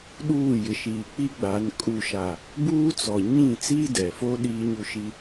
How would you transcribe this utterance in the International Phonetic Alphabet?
ɗ uː˦˨ j ɪ˨ ʃ iː˨ k͡p i˦ ɡ͡b a˨˦ n kʼ u˦˨ ʃ a˨ | b uː˦ t͡s ɔ˨ ɲ ĩ˦˨ t͡s iː˦ d ɛ˨ f o˦ ɗ iː˦ ɲ u˦ ʃ i˦

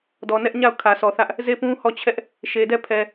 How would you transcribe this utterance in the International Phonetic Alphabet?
d ɔ˨ n ɛ˦ ʔ ɲ a˦˨ ʊ̯ kʰ ä˨ sʰ ɔ˨ θ ä˦ ʔ | z e˦˨ p ũ˦ h ɔ˦˨ t͡ɕʰ ɛ˦ ʔ | ʃ e˨ d ɛ˦˨ pʰ ɛ˨

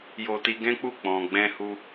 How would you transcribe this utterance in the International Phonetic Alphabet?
j o˧ t i˧ ɡ ɛ̃˦ k͡p u˦˨ k͡p ɔ̃˨ ɡ͡b ɛ̃˧ h u˦

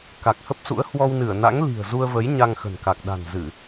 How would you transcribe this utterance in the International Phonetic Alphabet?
k a˨˩ k̚ h ə˦˥ p̚ s ṵ˧˥ ə̯ h w ɔ˧ w n ɨ˧˩ ə̯ n a̰˧˥ ŋ l i̤˨˩ ə̯ z u˧ ə̯ v ə˨˦ j ɲ a˧ ŋ x ə̤˨˩ n k a˨˩ k̚ ɗ a̤˨˩ n z ɨ˧˩˨

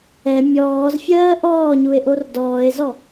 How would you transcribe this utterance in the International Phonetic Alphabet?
ɛ mʲ ɔː z fʲ ɜː ʔ ɔː ɲ u e̯ ʔ o r d ɔː e̯ z ɔ

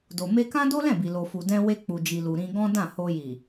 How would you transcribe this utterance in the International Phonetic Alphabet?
d o˨ m e˧ k ã˦ d o˦ l ɛ̃˦˨ b i˨ l o˨ f u˨ d ɛ̃˧ w e˧ k͡p u˨ d͡ʒ i˨ l u˨ ɾ ĩ˧ ɡ ɔ̃˦ d ã˦˨ h o˧ j i˨

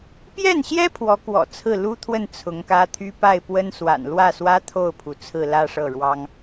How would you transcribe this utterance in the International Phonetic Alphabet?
p j ɛ˥˩ n ɕ j ɛ˥ pʰ w ɔ˧˥ k w ɔ̰˨˩ t͡sʰ ɹ̩˥˩ l u˥ t̪ʰ w ə˥˩ n t͡sʰ ʊ˧˥ ŋ k ä˥ t̪ʰ y˥ p a˥˩ ɪ̯ p w ə˥ n s w a̰˨˩ n l w ä˥˩ s w ä˥ t̪ʰ o˥˩ ʊ̯ pʰ u˩ t͡sʰ ɹ̩˥˧ l ä˥˧ ʂ ɤ˥˩ ɻ w ɑ˥ ŋ

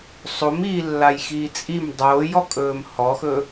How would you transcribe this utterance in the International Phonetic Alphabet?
sˤ o m iː lː a j x iː t͡sʼ i m dˤ oː j ɔ kʼ ɵː m h ɔ x ɵ

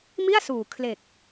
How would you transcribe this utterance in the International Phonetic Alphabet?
m i˥˩ a̯ s uː˨˩ kʰ l e˨˩ k̚

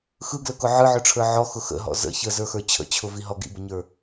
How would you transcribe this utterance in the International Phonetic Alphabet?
x ɯ ɡ l ə k ʊ ʕ ɯ ʕ ɵ ʈ͡ʂʰ ə˞ ʕ ɔ x ʊ x ə̰ ɦ ɔ̰ z ə̰ ç ə z ə˞ x ə˞ t͡ɕʰ ə̰ t͡ɕʰ ʊ v i ɦ ɔ ɡ ḭ b ə ɲ ə˞

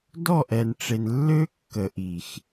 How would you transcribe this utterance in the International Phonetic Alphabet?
d ɔ˦˨ ʔ ɛ˨ n ʈ͡ʂ e˨ n lː ø˦ kː ə˨ ʔ i˨ x

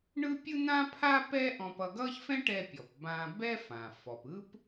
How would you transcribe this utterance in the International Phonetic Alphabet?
ɳ ɯ˥ pʲ ɯ˥ n̪ ã˥ pʰ a˥ p ɛ˥ ʔ ɔ̃˧ p ʌ˧ ɡ ʌ˥ ç f ɛ̃˥ ʈ ɛ˧ pʲ ɔ˩ p b ã˧ b ɛ˥ f ã˩ f ɔ˩ p ɯ˥ p

